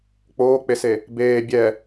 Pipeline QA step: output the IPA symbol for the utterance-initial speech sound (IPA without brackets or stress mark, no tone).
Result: k͡p